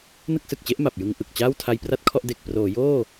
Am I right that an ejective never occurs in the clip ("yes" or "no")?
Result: yes